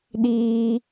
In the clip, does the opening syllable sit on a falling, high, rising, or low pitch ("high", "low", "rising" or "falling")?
high